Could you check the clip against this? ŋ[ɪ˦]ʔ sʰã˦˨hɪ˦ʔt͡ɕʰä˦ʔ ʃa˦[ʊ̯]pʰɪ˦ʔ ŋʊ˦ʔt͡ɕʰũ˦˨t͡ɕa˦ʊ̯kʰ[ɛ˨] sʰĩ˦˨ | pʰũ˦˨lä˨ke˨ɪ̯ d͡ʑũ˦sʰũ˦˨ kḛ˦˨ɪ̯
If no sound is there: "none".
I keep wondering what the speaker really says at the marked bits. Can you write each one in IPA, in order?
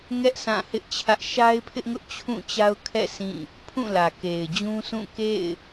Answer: ɛ˦, ɪ̯, ɛ̰˦˨

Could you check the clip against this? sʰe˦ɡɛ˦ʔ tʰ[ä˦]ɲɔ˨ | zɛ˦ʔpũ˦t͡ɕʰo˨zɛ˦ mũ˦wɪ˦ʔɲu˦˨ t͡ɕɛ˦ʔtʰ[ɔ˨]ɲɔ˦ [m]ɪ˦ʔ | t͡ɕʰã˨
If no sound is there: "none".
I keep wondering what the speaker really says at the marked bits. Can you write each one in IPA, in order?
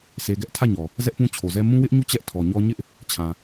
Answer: ä˦˨, ɔ˨, ɲ

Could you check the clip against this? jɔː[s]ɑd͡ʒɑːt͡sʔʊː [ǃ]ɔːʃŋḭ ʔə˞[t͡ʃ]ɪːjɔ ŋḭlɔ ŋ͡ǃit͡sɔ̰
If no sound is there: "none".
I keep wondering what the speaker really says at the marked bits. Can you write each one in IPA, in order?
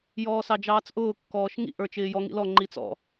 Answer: s, kː, t͡ʃ

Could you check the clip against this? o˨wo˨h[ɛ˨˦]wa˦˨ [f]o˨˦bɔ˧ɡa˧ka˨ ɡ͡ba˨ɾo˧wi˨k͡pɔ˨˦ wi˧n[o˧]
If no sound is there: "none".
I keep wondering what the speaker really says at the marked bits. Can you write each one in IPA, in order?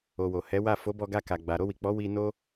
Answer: ɛ˨˦, f, o˦

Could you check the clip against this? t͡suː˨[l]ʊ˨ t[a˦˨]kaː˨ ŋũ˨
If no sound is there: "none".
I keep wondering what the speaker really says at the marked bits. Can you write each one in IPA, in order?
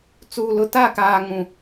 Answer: l, a˦˨

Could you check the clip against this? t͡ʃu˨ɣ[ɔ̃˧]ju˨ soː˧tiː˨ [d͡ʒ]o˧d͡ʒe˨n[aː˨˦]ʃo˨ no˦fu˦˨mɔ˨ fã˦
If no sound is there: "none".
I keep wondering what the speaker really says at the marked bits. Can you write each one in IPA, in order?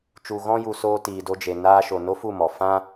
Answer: ɔ̃˧, d, aː˧

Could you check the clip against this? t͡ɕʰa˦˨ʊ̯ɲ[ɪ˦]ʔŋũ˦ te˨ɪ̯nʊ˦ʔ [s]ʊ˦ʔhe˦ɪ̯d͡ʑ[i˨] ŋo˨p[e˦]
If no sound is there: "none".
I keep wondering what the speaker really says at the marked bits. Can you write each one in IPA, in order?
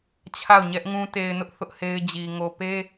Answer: ɛ˦, θ, i˨, e˦

